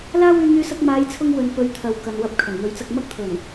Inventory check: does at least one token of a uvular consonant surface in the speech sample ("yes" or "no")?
no